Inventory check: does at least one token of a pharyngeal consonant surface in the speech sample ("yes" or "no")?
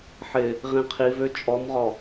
yes